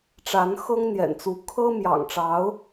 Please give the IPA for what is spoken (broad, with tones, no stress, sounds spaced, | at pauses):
ʈ͡ʂ a˧˥ n x ɤ˥ ŋ n̪ j ɛ̰˨˩ n t͡s u˧˥ kʰ ɤ˥ m j ɑ̰˨˩ ŋ ʈ͡ʂ ɑ˧˥ ʊ̯